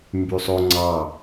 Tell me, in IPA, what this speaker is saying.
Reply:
m b y sˤ o ŋ͡ǀ ɑ

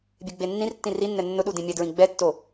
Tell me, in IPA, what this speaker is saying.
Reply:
bʲ e ɡ͡b e nː ĩ r tː ĩ r i nː ɛ nː ʊ ɗ u d ĩ mʲ ɛ d ɹ ĩ ɡ͡b ɛ tː o

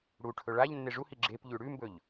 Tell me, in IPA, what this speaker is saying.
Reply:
ɽ u ʈʰ ɵ ɭ a ʎ nː e ʐ u h i ɡ͡ǁ e p ʎ ʉ ɽ ʉ m b ɵ ʎ

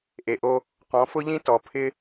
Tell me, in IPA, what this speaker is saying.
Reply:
ʔ e˨ ʔ o˦ | q ɔ̃˨˦ f ʊ˦ ʎ ĩ˦ t ɔ˨ pʰ ɪ˦

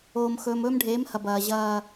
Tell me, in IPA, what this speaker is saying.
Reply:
oː˨ m x ɵː˨ m ɵː˦ m ɖʱ eː˨˦ m h ɐ˨ b ɐː˨ ʑ ɐː˦

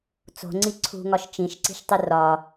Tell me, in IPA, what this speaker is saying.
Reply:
t͡s o̤ ŋ͡ǀ i ǀʰ ṳ ŋ ɒ ʃ t͡ʃ ĩ ʃ ǀ i̤ ʃ tˤ e r ɒ

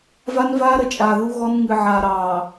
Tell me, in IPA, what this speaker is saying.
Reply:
v a˦ n v aː˦ ɾ ə˨ t͡ʃʼ aː˨ ð u˦ ɣ ɔ˦ n ŋ ɨ˨ ʕ aː˨ ɾ ɑː˨

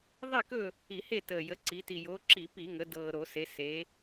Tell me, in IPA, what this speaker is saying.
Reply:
ðˤ i˥˨ k ɵ˥˨ | i˧˩˧ h e˥˨ t əː˨˩ j ə˩˧ ǀ i˩˧ t i˨˩ j o˩˧ ǁ i˧˩˧ p i˧˩˧ ŋ ə˩˧ d ɤː˨˩ ɾ o˧˩˧ s e˩˧ s e˩˧

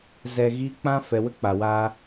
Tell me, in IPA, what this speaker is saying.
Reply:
z ɛ˧ ɣ iː˦ k͡p ã˦ f ɛ˨ w ə˧ k͡p a˨ w aː˧

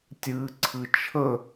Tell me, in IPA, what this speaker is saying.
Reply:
tʲ ɨ ǀʰ ɨ t͡ʃʰ ə

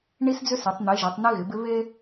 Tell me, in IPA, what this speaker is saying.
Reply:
ɳ i˦ s d͡z ʏ˦ s e˨˦ tˤ n̪ i˨˦ ʒ i˨˦ tˤ n i˦ ɣ ɪ˨˦ b ɪ˦ β e˦

